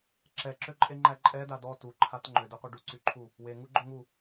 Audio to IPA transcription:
ǁ ɛ ǁ ø ǃʼ e ŋ͡ǃ æ ǃʼ ɛ d a d ɔ t u ǃʰ a t ŋ͡ǃ ø d ø qʷ e ɖ u ǀ y ǃʰ u | w e ŋ u ɡ͡ǃ ø ŋ u

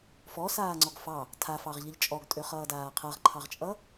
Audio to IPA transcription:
f ɔ s aː ŋ͡ǀ ɔ ɡ f ɑ | tʰ a f ɑ ʁ ʎ ʌ ʎ t͡ʃʼ ɔ ɡ tʼ ø χ ʌː d aː qʰ ʌ ʁ ǃʰ ɑ ʁ t͡ʃʼ ʌ

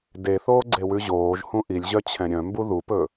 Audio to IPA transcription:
d e θ oː ɡ͡ǀ e w ʉ ʑ oː ʒ h ũ ʔ i lʲ ʑ œ t͡ɕʰ ɛ̃ ɾʲ œ̃ m b u ð u p ɵ

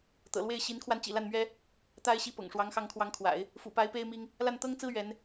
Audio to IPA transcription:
t̪ ɤ̰˨˩ l w e˥˩ ɪ̯ ɕ i˧˥ n kʰ w a˧ n t͡ɕ ḭ˨˩ l a˥˩ n m ɥ ɛ˥ | t̪ a˥ ɪ̯ ɕ i˥˩ p ɤ̰˨˩ ŋ ʂ w ɑ˧˥ ŋ x ɑ˧˥ ŋ kʰ w ɑ˧˥ ŋ kʰ w a̰˨˩˦ ɪ̯ | f ṵ˨˩ p a˧˥ ɪ̯ p e˥ ɪ̯ m i˥ ŋ | l a˥˩ n t̪ ɤ˥ ŋ t͡s ɹ̩˥ ɥ ɛ˧˥ n

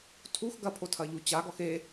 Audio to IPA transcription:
tʰ u x ɡ ɐ pʰ o tʰ ɐ ʎ u t͡ɕ a ɡ ɔ x e

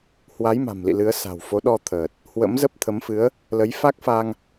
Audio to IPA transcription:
h w a˨˦ j m a̤˨˩ m l ḭ˧˨ l ɨ˨˦ ə̯ s a̤˨˩ w f o˨˦ ɗ ɔ˧ t̪ʰ əː˨˩ t̚ | h w ə̰˧˥ m z ə˦˥ p̚ t̪ʰ ə˨˦ m f ɨ˨˦ ə̯ | l ə˨˦ j f a˦˥ k̚ f a˧ ŋ

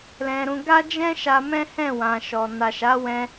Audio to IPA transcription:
l ɛ̃˧ ɾ ũ˧ ɡ a˦ d͡ʒ ɛ̃˦ ʃ a˧ m ɛ̃˦ h ɛ̃˦˨ w ã˨ ʃ ɔ˨ n a˨ ʃ a˨˦ w ɛ̃˧

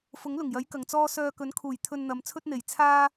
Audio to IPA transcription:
f ʊ˨˥ ŋ l ʊ˨˩ ŋ j ɐ˨˥ j k ɐ˨ ŋ t͡s ɔː˥ s œː˧ k ɵ˨˥ n kʰ uː˨˩ j t̪ʰ ɵ˧ n n̪ ɐ˨ m t͡sʰ ɵ˥ t̚ n̪ e˨˩ j t͡sʰ aː˥

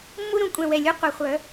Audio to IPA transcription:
mː u˥ ɾ ũ˩˧ kʷʼ ɛ̃˧˩ w ɛ˧˩ lʲ u˥ qʷ e˩˧ χʷ œ˩˧

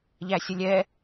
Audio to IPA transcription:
ʎ æ sʲ ə lʲ ɛ

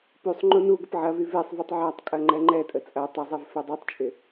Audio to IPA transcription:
p y sˤ ŋ͡ǃ u n u ɡ ə p ʕ ɐ v y v e sˤ v u tˤ ʕ a tˤ kʼ ɐ ŋ͡ǃ ɛ ŋ͡ǃ ɛ tʼ ə t͡sʼ ɐ tˤ ɐ zˤ ɛ v f ɛ dˤ y tˤ t͡ʃʼ ɪ

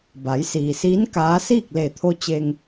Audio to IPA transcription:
b a˩˧ j s iː˩ s iː˧˥ n k aː˧˥ s iː˥˨ k̚ l e˧˩ t̪ʰ o˧ t͡ɕ e˧ ŋ

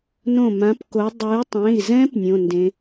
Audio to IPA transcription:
n õ˧˩ m ã˨˦ p k o˨˦ dˤ ɯ˨˦ y̯ tˤ ẽ˩˧˩ i̯ z ɛ̃˦˥ p nʲ õ˩˧˩ n d ẽ˨˦

